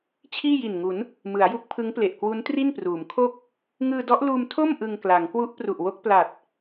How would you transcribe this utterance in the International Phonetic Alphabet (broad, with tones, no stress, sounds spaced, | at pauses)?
t͡ɕʰ iː˥˩ j i˨˩ n ŋ u˩˦ n | m ɯ˩˦ a̯ j u˦˥ k̚ pʰ ɯ˦˥ ŋ p l e˨˩ ʔ k w u˦˥ n t r i˥˩ n p r uː˩˦ m kʰ o˥˩ k̚ | ŋ ɯː˧ d ɔ˦˥ ʔ l uː˧ m tʰ o˥˩ m ʔ ɯ˧ ŋ k l a˩˦ ŋ k w u˦˥ ʔ p r u˨˩ ʔ w o˦˥ k̚ p l a˨˩ t̚